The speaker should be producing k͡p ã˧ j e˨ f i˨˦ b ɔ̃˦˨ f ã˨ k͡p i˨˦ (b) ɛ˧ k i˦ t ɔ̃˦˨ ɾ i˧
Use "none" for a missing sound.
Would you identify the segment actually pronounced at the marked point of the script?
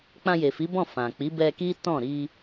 b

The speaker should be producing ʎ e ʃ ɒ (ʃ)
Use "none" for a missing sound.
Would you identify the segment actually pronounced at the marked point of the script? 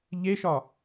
none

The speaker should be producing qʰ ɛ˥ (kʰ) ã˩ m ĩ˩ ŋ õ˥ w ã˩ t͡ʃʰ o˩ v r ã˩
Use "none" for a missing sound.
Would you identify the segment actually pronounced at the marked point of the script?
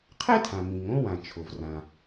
tʰ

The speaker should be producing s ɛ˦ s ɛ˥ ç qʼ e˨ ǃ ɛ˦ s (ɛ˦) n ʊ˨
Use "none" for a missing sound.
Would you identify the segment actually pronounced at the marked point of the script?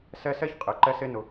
e˦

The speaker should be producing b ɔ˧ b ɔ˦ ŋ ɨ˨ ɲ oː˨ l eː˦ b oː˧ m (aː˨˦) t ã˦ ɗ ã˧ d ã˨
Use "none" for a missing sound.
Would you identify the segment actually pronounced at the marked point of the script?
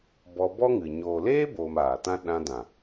aː˨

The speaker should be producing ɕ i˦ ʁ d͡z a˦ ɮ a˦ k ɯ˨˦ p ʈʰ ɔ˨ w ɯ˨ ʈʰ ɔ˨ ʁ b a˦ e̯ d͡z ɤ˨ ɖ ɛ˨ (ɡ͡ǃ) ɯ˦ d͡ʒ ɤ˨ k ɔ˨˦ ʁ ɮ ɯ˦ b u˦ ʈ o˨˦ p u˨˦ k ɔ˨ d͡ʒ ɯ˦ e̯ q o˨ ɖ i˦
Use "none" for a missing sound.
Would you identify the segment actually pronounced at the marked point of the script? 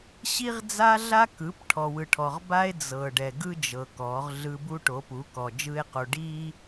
ɡ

